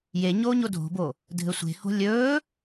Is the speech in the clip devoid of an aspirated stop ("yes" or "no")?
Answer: yes